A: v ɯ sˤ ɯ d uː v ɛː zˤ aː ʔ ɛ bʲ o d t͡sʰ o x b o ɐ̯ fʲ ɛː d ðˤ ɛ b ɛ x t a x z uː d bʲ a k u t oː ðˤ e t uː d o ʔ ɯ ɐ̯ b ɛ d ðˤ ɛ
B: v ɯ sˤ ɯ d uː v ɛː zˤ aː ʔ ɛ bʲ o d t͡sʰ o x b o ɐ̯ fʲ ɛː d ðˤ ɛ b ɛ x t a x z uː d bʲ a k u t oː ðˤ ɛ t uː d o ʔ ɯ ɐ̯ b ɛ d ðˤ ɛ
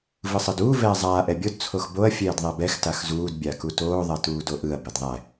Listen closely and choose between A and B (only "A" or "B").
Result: B